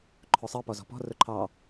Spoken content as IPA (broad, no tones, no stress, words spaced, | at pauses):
ǃʰʊsˤɜ pɔzɔ̤pɔ̤ rʊǃʰɑ